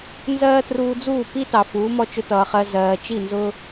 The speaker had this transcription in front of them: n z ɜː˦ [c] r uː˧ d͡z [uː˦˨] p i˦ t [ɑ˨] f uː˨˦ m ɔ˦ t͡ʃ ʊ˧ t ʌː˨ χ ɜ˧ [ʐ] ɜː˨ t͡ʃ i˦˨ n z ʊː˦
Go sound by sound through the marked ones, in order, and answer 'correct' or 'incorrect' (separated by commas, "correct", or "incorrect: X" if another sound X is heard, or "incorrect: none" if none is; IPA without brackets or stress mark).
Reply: incorrect: t, correct, correct, incorrect: z